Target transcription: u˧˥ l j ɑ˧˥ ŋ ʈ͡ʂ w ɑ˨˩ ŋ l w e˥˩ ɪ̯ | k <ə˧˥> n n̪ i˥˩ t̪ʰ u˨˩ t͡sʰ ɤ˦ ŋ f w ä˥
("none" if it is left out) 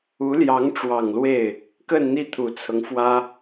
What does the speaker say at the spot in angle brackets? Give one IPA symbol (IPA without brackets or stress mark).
ə˥˧